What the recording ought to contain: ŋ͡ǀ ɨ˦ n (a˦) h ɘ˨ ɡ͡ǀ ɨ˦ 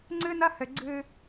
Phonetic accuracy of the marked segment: incorrect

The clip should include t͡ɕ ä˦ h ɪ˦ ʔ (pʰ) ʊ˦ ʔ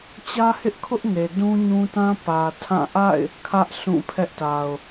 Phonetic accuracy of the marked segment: incorrect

